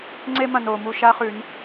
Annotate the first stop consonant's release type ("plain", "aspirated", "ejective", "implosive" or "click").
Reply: click